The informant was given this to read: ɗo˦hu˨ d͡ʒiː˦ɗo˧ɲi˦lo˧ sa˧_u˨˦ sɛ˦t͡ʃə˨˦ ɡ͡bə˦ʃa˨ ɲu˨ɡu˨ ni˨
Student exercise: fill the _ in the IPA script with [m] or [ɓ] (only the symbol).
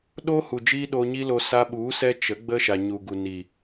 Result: ɓ